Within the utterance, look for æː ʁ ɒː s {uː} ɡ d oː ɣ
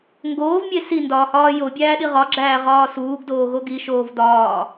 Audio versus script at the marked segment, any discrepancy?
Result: no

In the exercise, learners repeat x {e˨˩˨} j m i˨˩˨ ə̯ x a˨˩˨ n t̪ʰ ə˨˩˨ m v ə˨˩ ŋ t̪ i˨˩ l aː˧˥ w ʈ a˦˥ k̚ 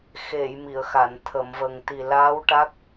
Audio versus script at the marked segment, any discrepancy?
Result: no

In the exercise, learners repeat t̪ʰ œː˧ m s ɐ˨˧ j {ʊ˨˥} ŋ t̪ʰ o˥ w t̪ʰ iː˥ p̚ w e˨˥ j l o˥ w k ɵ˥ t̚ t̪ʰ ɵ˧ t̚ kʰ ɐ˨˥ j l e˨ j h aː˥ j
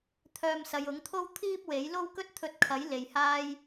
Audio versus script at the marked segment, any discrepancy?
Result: no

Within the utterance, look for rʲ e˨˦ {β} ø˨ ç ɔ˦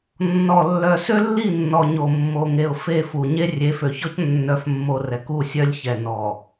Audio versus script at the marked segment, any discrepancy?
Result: yes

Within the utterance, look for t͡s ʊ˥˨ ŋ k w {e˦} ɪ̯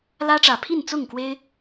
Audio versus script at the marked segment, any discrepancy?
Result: no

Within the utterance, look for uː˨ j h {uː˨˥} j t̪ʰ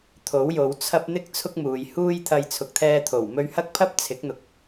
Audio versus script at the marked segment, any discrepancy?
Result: yes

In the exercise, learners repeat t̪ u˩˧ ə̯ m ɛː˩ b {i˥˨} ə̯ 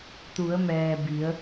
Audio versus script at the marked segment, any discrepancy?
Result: yes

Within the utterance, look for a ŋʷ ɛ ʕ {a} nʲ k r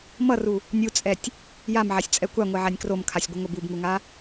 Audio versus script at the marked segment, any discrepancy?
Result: no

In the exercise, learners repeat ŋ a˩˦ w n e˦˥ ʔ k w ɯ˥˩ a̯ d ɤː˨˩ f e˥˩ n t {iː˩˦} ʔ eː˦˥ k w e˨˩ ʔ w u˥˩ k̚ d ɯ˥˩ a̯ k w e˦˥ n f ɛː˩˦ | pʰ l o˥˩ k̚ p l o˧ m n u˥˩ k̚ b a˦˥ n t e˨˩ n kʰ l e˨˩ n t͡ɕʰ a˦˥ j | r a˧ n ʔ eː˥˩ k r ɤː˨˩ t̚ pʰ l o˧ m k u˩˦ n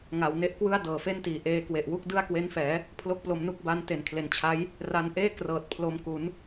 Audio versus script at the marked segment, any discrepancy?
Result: no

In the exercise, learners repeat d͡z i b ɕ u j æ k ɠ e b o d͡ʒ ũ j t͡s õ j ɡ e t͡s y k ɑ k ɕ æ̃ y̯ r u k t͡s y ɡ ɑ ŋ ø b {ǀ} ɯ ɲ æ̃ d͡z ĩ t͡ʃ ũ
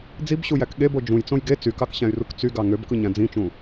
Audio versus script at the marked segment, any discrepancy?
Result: yes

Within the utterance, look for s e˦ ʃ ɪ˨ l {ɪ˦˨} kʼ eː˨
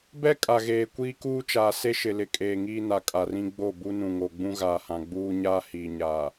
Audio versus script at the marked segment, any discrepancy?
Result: yes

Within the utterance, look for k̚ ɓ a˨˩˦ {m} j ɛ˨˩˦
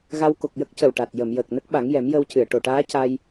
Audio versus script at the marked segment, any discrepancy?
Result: yes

